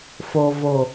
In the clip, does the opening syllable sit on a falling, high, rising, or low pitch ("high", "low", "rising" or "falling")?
low